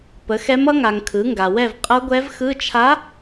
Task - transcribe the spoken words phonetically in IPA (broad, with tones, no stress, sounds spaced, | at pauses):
p ə˩˥ x ɛ˧˥ m ʌ˧˥ ŋ a˨ ŋ kʰ ɯ˩˥ ŋ ɡ a˨ w ɛ˥˨ v qʼ ʌ˧˥ ɡʷ ɛ˧˥ v x ɯ˧˥˧ t͡ʃʰ a˧˥